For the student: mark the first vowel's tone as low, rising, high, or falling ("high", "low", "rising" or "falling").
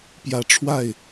low